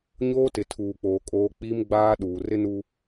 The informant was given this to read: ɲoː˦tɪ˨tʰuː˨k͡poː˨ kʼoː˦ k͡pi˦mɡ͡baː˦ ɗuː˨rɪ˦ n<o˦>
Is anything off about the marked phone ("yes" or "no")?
yes